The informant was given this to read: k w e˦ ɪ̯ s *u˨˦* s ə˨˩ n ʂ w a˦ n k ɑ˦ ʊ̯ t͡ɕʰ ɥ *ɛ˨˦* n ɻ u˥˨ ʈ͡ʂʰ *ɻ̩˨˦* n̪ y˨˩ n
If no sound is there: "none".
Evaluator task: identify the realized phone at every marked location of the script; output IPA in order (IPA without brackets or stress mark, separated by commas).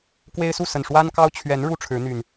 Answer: u˥˨, ɛ˨˦, ɻ̩˨˦